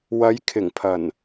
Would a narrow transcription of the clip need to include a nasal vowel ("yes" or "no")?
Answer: no